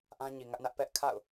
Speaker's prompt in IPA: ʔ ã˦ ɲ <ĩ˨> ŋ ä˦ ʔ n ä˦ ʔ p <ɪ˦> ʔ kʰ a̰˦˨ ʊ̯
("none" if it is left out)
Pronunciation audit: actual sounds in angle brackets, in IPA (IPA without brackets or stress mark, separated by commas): i˨, ɛ˦